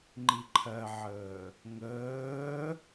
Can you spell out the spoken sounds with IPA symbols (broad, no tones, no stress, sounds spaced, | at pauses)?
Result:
ŋ͡ǃ i ǃʰ ɜ ʕ əː | ŋ əː